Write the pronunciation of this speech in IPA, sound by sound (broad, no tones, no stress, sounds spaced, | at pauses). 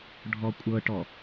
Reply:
ɖʱ ɔ kʷʼ ɤ ʈ ɔ